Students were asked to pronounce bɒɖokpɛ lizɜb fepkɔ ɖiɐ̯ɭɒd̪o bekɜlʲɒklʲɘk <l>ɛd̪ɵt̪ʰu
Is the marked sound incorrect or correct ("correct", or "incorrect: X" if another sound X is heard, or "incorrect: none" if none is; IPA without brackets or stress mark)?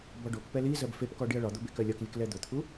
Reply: correct